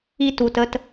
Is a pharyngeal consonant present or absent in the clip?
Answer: absent